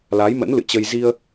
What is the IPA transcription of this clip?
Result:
la˨˦jmə̰˧˥nlɨ̰˧˨t͡ɕə˧j zi˧ə̯

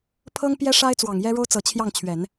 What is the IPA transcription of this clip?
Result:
pʰɤ˥ŋpjɛ˥ʂa˥ɪ̯ t͡swɑ˨˩ŋjɛ˥ɻo˥ʊ̯ t͡sɤ˨˩t͡ɕʰjɑ˥˩ŋt͡ɕʰɥɛ˨˩˦n

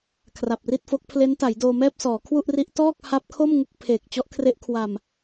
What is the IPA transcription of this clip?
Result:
kʰra˨˩p̚ri˥˩t̚fo˦˥k̚ pʰle˦˥nta˩˦jdoː˧mɛː˥˩p̚ sɔː˩˦kʰwu˥˩ʔri˦˥ʔ tɔː˥˩k̚ha˦˥p̚kʰo˥˩m ŋu˥˩k̚pʰeː˨˩k̚ t͡ɕɔ˦˥ʔkʰre˦˥ʔ kʰwa˨˩m

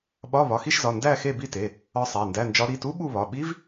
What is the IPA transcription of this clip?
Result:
ɓɒ˧˥˧ βɒ˩˧˩xi˥˧ʃzɒ˩˧˩ ndæ˥˧ xe˥˧bi˥˧te˩˧˩ | ɒ˦˥sˤæ˩˧˩ndæ˧˥˧nd͡ʒɒ˦˥ ɾi˩˧˩tu˦˥ ɓu˥˧βɒ˩˧˩ ɓi˦˥v

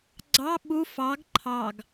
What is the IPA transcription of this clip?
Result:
ɡ͡ǀɑ ɓu fɑɡ ǃʰɑɡ

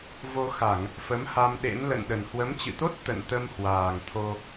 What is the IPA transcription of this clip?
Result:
vo˧xa˧˩˨ŋ | fə˨˦mha˧mɗḛ˧˥n lə̰˧˨n ɗə˨˩nhwə˨˦mt͡ɕɨ̰˧˨t̪o˦˥t̚ t̪ə̰˧˨n t̪ə˧mhwaː˨˩ŋ t̪ʰo˧

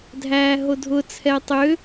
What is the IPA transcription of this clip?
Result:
dʱæːɦodʱʊ t͡sʰɛtˤʏ

